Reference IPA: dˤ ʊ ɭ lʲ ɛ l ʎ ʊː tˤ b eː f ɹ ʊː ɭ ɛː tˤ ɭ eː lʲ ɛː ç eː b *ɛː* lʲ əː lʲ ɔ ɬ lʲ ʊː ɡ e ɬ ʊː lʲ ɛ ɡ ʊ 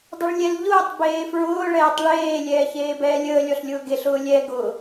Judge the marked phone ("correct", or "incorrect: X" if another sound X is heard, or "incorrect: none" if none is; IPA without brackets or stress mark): correct